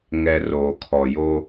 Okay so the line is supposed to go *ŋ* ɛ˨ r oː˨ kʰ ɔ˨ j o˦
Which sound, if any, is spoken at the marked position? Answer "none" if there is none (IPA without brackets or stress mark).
ŋ